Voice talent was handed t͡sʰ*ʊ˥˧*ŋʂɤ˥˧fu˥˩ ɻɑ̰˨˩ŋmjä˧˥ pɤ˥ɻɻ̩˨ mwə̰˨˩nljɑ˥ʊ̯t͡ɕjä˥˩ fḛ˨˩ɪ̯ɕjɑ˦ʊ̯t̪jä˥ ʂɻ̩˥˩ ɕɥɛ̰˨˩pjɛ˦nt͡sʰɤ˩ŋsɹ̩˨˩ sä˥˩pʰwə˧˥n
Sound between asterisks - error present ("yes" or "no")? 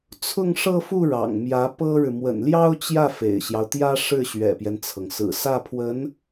no